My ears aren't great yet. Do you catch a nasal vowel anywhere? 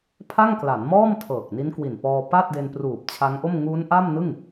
no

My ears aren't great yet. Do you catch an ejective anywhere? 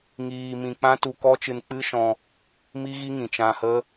no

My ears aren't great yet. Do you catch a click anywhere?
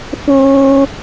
no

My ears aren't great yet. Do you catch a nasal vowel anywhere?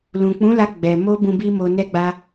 yes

